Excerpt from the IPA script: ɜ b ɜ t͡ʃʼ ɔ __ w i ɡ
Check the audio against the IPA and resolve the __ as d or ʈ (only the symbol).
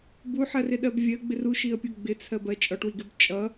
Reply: ʈ